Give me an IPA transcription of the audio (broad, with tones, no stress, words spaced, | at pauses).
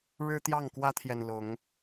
ɻɻ̩˦t̪jɑ˥˨ŋkwä˦t̪ʰjɛ˨n lʊ˨˦ŋ